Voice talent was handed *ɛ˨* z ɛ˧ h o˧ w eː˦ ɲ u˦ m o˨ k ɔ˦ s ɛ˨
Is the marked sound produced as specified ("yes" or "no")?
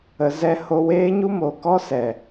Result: no